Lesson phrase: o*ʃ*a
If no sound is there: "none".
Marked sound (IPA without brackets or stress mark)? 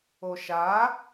ʃ